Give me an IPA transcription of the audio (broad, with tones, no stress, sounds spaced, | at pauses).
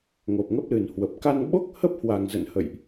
ŋ o˨˩ p̚ ŋ ə˦˥ p̚ l ɨ˨˩ n h w ə˨˩ p̚ k a˧ n ɓ o˦˥ k̚ h ə˦˥ p̚ h w a˨˩ ŋ z ə̰˧˨ n h ə̰˧˨ j ʔ